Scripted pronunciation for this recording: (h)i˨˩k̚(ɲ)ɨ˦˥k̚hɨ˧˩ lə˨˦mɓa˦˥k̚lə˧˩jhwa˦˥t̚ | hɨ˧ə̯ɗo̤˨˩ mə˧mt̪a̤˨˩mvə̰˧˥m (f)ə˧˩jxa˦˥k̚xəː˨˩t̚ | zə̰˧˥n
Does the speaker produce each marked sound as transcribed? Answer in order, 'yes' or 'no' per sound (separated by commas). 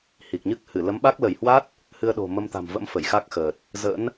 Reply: yes, yes, yes